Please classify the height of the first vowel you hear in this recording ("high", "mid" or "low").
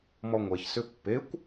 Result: mid